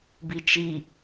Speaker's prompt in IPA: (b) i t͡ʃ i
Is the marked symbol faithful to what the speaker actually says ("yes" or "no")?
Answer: yes